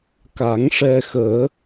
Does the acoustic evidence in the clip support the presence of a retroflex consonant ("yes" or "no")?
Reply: yes